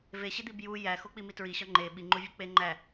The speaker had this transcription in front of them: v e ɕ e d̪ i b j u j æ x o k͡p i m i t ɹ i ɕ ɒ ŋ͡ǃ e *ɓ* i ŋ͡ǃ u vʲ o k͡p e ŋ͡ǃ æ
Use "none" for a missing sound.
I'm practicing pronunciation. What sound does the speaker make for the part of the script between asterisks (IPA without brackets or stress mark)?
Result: ɓ